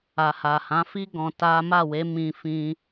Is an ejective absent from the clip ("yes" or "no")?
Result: yes